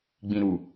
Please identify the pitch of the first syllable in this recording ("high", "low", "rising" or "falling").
low